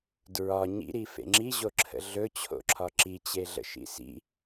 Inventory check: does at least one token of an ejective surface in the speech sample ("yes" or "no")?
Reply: no